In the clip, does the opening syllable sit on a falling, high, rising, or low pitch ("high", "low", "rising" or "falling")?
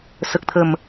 low